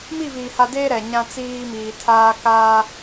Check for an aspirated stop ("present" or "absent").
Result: present